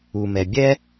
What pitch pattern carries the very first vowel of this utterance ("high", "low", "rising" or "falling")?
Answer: low